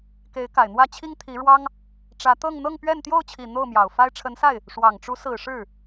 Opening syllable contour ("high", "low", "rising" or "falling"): rising